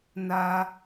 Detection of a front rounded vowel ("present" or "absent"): absent